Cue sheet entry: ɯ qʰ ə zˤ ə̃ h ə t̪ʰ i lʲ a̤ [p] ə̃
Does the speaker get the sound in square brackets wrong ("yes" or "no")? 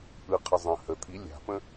no